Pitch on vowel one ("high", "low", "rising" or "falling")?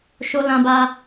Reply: high